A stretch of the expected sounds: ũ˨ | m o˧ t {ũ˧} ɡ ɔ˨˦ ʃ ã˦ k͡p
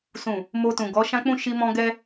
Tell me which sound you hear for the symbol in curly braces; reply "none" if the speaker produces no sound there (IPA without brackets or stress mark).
ũ˨